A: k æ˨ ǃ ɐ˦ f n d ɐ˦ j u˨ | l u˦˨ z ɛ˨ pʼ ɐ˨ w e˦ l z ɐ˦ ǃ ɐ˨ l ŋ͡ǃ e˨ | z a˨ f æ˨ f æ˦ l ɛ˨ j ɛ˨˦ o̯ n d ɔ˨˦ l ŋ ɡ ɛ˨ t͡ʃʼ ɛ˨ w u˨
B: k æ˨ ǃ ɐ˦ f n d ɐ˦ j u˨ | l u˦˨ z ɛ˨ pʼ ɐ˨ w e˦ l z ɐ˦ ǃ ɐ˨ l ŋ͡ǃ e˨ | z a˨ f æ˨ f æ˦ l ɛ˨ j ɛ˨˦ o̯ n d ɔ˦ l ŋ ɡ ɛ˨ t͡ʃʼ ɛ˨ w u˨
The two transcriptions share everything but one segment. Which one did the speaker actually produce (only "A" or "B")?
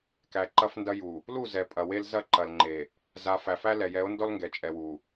B